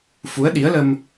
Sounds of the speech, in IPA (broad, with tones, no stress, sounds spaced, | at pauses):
f u˨˦ ə̯ ɗ i˨˦ ə̯ l ə˧ m